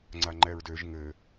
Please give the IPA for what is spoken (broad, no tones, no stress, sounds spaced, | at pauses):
ŋ͡ǀ a ŋ͡ǃ ɛ ɹ d ø ʒ ŋ ɘ